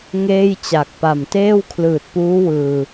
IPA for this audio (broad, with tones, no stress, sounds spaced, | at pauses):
ŋ eː˥˩ j t͡ɕ a˨˩ k̚ p a˨˩ m t eː˥˩ w kʰ l ɯː˨˩ t̚ p uː˦˥ w ɯː˧